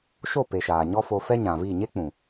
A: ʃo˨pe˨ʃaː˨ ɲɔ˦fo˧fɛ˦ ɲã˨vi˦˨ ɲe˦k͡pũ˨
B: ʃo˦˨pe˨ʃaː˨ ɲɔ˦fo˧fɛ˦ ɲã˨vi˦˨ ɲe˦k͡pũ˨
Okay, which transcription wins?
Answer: B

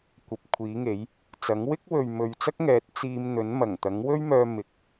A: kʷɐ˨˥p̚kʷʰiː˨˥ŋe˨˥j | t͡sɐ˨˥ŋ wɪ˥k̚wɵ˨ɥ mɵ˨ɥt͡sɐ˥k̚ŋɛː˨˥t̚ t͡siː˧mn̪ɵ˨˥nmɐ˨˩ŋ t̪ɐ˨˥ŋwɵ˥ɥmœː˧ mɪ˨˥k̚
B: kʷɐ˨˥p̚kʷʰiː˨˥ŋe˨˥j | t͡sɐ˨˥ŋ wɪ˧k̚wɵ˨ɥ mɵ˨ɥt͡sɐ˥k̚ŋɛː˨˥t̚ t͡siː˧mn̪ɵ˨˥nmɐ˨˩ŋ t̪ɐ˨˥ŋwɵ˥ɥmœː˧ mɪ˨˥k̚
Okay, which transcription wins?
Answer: A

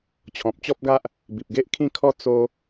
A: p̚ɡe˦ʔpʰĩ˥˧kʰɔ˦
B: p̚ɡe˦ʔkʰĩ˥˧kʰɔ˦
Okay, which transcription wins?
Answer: B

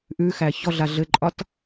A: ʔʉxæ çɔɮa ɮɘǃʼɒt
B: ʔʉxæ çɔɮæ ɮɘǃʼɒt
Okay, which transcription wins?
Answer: A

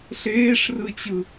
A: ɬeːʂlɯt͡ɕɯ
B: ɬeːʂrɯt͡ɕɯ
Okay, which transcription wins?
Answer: B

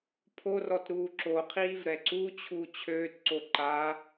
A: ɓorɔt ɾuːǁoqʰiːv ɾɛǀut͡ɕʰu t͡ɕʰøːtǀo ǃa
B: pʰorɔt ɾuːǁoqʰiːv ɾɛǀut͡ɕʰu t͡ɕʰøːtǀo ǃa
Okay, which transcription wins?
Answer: B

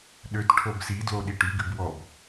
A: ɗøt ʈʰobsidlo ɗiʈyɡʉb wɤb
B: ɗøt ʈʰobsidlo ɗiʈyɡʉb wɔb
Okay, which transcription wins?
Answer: B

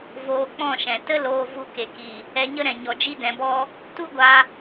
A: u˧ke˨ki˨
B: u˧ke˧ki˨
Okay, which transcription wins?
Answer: A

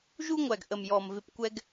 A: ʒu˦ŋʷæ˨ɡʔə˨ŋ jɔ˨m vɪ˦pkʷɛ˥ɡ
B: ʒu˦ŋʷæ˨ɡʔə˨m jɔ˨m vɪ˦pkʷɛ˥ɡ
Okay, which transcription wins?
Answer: B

